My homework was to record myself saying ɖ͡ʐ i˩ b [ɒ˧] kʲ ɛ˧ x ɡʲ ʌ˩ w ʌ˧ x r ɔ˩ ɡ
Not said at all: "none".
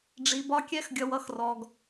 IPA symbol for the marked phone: ɒ˧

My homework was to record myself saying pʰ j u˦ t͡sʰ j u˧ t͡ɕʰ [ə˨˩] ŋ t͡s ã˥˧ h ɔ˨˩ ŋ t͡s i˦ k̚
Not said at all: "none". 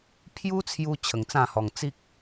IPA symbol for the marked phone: ə˨˩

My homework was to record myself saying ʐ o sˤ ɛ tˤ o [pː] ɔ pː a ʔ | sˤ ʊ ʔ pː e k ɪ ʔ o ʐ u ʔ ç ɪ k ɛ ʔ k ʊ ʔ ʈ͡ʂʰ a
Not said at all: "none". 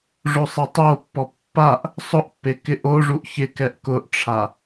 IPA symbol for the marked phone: pː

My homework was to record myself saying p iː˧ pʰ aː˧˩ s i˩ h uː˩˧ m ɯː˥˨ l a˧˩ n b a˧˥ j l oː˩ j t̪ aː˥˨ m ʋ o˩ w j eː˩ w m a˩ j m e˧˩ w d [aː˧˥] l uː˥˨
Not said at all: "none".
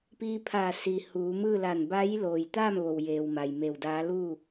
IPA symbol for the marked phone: aː˧˥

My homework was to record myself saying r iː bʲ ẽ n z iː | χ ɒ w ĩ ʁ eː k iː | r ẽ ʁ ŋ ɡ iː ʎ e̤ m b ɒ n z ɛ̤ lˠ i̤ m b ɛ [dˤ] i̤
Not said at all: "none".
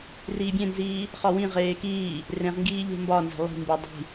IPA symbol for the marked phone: dˤ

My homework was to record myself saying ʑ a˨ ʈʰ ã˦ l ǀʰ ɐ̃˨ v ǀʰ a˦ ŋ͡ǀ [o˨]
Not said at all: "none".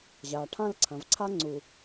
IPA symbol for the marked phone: u˨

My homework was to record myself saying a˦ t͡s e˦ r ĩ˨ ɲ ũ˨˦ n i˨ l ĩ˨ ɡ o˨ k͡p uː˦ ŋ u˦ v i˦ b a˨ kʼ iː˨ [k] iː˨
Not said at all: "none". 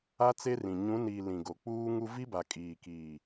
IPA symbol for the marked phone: k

